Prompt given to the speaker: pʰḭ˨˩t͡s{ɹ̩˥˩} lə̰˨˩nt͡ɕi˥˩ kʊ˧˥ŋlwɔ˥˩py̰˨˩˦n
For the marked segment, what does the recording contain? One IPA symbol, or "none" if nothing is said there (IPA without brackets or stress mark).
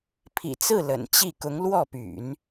ɹ̩˥˩